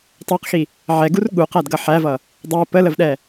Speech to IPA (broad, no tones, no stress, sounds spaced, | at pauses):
tˤ æ q x i | ʕ ɛ ɡ u r ɠ u q æ d ɡ ʌ ħ æ v ʌ | dˤ æ p ə l ə v ɗ ɛ